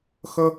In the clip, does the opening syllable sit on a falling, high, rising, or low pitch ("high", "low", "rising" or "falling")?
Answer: high